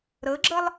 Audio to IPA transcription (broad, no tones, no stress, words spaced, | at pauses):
ɾɤɡ͡ǁɤlˠ